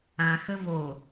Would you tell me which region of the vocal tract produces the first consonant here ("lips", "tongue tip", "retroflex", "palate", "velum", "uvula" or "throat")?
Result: velum